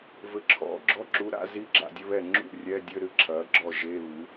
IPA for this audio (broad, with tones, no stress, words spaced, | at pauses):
vɘ˩˥ǁʰɔ̰˩˥ ɡ͡ǁɔ˧˥˧ ǁu˩˥ɾa̰˧˥˧ zi˧˥˧ ɡ͡ǁa̰˥˩dʲɘ˧˥˧βɛ˥˩ ŋ͡ǁṵ˥˩ rʲɛ˧˥˧dʲɘ˧˥˧ɾɨ˥˩ ǁʰɐ˩˥ɡ͡ǁɔ˥˩ʒe˧˥˧βɨ˩˥